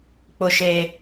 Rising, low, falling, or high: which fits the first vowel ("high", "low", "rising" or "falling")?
high